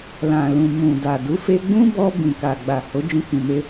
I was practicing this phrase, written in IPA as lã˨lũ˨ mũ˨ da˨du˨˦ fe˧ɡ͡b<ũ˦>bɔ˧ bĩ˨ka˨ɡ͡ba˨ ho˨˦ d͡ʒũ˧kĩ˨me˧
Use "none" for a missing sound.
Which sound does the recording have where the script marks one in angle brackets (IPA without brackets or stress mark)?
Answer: ũ˦